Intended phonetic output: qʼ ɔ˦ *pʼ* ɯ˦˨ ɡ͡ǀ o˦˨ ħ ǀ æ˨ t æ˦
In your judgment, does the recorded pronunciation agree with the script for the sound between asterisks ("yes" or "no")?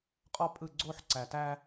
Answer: yes